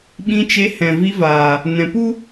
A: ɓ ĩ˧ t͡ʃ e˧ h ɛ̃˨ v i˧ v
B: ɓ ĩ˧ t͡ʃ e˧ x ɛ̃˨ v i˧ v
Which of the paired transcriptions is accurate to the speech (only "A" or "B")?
A